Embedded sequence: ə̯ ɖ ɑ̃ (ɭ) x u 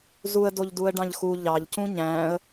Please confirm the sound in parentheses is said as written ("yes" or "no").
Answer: no